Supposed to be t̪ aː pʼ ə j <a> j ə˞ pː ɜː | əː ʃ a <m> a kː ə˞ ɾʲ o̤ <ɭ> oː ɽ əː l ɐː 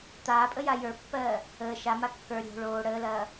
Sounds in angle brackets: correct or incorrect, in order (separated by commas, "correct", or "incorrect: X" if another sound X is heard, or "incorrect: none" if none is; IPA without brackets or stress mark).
correct, correct, correct